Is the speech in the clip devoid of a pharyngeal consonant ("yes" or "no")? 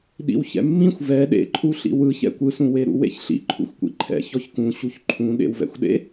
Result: yes